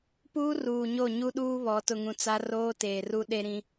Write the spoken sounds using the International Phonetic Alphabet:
puː˦ruː˨ɲo˦˨ ɲu˦ɗuː˦βɔ˨˦ tʊ˨ŋũ˨ t͡sa˦roː˦teː˨ru˦ ɗe˦ɾĩ˦

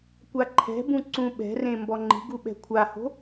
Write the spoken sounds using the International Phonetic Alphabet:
kʷaǃʰɛ̤bũ ǀũɓɛ̤rẽ mbɔŋ͡ǃi̤ɡu ɓɛ̤kʷʰaho̤

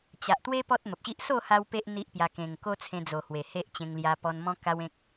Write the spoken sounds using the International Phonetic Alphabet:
t͡ɕa˨ʔt̪we˦ pɔ˦t̚mə˨p̚ɕi˦ʔ so˥˧ ha˦wpe˦ʔ n̪i˦ʔpja˧ kẽ˨˩ŋko˦t͡sʰẽ˧d͡zo˨˩ hwe˨˩he˦ʔt͡ɕẽ˧ŋ lja˧ pɔ˧nmɔ̃˦ka˦wẽ˦k̚

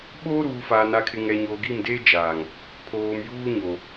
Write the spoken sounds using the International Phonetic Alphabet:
ɓoː˦ɾuː˨faː˨ na˨kʰɪ˨ ŋɛ˨ɲoː˨ɡi˦˨mdeː˦ d͡ʒaː˨ŋ | pʰoː˨m juː˦ɲo˨

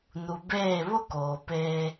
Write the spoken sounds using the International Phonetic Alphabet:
nu˨beː˦˨ βʊ˦koː˨ peː˦

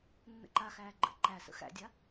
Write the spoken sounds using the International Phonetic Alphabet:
nːə̰ǃaxæː ɡ͡ǃə̰ ǃæ sə̰xæ̰dʲa

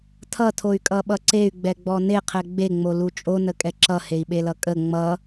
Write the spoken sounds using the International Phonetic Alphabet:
tʰʌtʰoy̯kʼʌɓʌ ǀey̯ɡ͡bɛɡ͡bɔ neqʰɛ ɡ͡beŋ͡molu t͡ʃʼonəkʼɛ ǁʌhei̯ɓelʌ kʼə ŋ͡mʌ

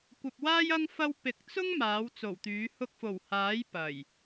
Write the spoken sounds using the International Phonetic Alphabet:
kʷɐ˨p̚waː˥j ɐ˥ŋ fɐ˥w pɪ˨k̚t͡sʊ˥ŋ maː˨˥wt͡so˨˩wt̪yː˨˥ hʊ˧k̚fo˨˩whaː˨˥j pɐ˨˩j

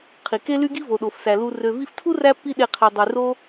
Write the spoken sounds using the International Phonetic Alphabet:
qʰi˨ke˦ly˦ɡi˦ vo˨ɗo˨fsæ˨ lu˧ rø˨vi˧ftʰu˦ ræ˦pːi˦ɗe˧ qʰi˨dˤy˨ ro˦

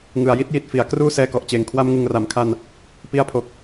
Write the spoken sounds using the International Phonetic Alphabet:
ŋɯ˨˩a̯ji˥˩t̚ji˨˩t̚ fi˩˦a̯kruː˥˩ sɛː˧kɔ˨˩ʔt͡ɕeː˨˩ŋ kʰwa˧mŋɯ˨˩ŋra˩˦mkʰa˧n | pi˧a̯pʰo˨˩k̚

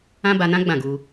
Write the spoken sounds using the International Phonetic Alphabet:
ã˦ba˧nã˦ ɡ͡bã˦˨ɡu˧

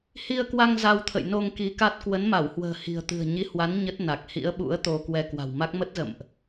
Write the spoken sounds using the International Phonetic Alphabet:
hi˧ə̯kwa˧ŋ za˧wt̪ʰə̰˧˨jno˧ŋ ki˨˦ka˦˥t̚ kwə˨˦nma˧˩whwə̤ː˨˩ hi̤˨˩ə̯t̪ɨ̤˨˩ə̯ɲi˨˦hwa˨˦n ɲə˦˥t̚na˨˩k̚ hḭ˧˥ə̯ɓṵ˧˥ə̯ t̪o˧kwɛ˧ kwa̤˨˩wma˦˥k̚ mə˦˥t̚zə̰˧˨mʔ

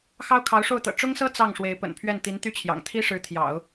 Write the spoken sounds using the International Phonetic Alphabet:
xɑ˥ʊ̯kʰɑ˧˥ʊ̯ʂo˥˩ʊ̯t̪ɤ̰˨˩ ʈ͡ʂʊ˥ŋsɤ˥ t͡sɑ˥˩ŋ ʂwe˧˥ɪ̯pə̰˨˩npʰɥɛ˥˩n t̪i˧˥nt̪y˥˩t͡ɕʰjɑ̰˨˩ŋ t̪ʰi˥ʂɻ̩˧˥t̪ʰjɑ̰˨˩˦ʊ̯

